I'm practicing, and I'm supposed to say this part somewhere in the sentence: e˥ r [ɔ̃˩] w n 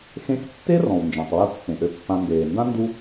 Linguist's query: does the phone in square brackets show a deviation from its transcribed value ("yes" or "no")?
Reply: no